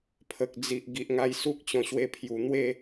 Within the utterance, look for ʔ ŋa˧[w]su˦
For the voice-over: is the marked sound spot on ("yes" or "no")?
no